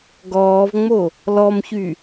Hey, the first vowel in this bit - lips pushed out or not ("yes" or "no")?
yes